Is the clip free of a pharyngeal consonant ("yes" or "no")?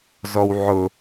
no